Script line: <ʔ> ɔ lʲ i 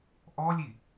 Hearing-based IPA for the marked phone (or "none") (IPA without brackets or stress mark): ʔ